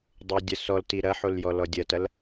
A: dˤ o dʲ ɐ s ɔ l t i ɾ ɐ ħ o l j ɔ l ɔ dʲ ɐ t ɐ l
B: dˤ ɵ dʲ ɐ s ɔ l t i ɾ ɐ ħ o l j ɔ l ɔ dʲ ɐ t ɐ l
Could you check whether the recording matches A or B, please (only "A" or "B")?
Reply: A